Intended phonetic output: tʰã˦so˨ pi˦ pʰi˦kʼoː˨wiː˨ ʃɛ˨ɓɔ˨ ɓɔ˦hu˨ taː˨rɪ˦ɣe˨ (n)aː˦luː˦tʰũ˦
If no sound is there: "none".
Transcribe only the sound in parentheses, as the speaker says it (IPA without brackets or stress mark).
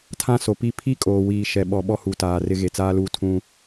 t͡s